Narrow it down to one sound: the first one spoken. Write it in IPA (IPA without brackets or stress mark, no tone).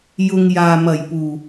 j